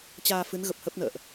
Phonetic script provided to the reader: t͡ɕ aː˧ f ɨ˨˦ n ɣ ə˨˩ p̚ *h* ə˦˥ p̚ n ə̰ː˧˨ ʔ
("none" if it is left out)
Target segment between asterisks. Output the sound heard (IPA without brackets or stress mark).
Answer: h